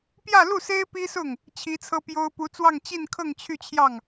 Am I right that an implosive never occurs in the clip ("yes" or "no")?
yes